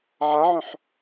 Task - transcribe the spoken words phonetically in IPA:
ʕ a ʕ œ̃ ħ

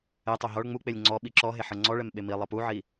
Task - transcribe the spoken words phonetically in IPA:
ɛ tˤ o ɦ ɔ ɭ ŋ͡m u k͡p e lʲ ŋ͡ǀ ɔ ɓ i ǁ ɔ ɦ e ħ ɤ ŋ͡ǀ ɔ ɭ ɛ m ɓ e m i lˠ ɤ p u ʕ i

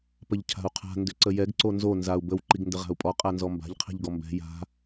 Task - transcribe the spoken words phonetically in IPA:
p ə ʎ cʰ a̤ u̯ qʰ a̤ n d ʏ ǀ ə j ɛ ɡ ǀ o n z o n z a u̯ b ə w ǃ i ɡ n d ə ʁ a̤ u̯ pʼ ɔ qʼ a n z ɔ m b a̤ ʎ qʰ ɛ̤ ʎ ɡ ɔ m b ɛ̤ j a̤

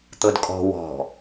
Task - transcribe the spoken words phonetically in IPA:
t̪ ɤ d kʼ ɔ̤ w ɔ̤

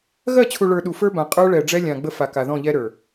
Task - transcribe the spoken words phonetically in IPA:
ɣ ɜ˦˨ t͡ɕʰ u˨ ɭ ə˞˨ ɗ u˨ f ə˞˦ b ã˨ qʼ ə˞˦ ɭ ɛ˨ ɖ͡ʐ ɛ˦ lʲ ã˨ ɡ͡b ə˦ f a˨ k a˨ ð ɔ̃˦˨ ʎ ɛ˦ ɾ ə˞˨

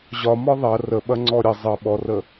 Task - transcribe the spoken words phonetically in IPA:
ʑ ɒ m ɒ ðˤ ɐ r ə ɓ ɐ ŋ͡ǀ ɔ ɾʲ ɐ zˤ ə ɓ ɔ r ə

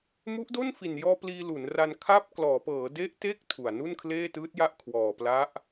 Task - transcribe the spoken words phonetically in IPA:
m u˦˥ ʔ d o˥˩ n f i˨˩ n j ɔː˧ p l iː˧ l u˩˦ n r a˧ n kʰ a˥˩ p̚ k l ɔː˩˦ p ɤː˩˦ d e˦˥ ʔ t e˦˥ k̚ tʰ u˨˩ a̯ n u˥˩ n kʰ l eː˥˩ t ɯː˦˥ t̚ j a˥˩ ʔ kʰ w ɔː˨˩ p l a˦˥ ʔ

